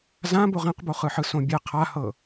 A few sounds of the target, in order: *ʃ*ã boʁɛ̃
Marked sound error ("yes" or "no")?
yes